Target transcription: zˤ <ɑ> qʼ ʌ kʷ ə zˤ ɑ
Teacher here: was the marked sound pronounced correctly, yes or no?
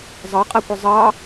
yes